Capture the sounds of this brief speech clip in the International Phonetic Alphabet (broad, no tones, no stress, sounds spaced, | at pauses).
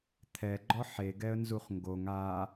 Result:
t̪ʰ ɛ ɡ͡ǃ ɔ ħ e ɡ ɛ ə̯ n z u χ ŋ ɡ o ŋ a